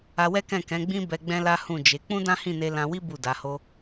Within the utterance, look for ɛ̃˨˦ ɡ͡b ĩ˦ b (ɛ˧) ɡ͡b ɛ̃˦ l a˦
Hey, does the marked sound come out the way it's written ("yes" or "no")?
yes